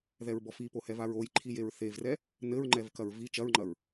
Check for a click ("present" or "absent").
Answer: present